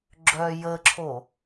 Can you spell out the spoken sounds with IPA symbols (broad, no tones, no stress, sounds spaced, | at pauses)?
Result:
ɡ͡ǁ œ j ə ǁʰ o